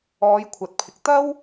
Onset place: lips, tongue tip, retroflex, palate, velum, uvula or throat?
palate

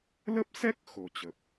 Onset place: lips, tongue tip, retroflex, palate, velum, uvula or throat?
tongue tip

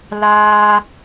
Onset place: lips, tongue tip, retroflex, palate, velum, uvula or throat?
tongue tip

